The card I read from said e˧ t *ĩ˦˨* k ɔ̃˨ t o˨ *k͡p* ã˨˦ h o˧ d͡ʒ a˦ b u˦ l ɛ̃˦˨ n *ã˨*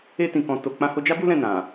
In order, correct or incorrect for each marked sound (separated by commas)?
incorrect, correct, correct